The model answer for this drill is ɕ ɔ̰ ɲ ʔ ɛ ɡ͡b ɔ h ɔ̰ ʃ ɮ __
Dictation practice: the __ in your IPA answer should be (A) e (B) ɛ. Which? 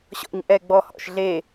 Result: A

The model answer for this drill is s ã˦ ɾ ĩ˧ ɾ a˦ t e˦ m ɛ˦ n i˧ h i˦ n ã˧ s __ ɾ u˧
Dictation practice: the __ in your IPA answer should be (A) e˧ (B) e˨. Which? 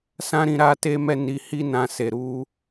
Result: B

